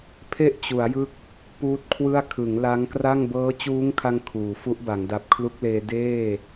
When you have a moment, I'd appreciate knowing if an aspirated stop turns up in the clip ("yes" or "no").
yes